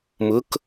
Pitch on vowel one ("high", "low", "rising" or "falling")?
rising